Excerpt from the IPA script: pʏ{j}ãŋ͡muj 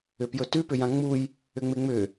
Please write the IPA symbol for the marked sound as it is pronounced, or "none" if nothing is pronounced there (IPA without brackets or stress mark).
j